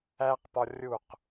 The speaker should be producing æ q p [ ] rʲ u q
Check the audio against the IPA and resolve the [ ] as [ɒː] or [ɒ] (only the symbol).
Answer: ɒ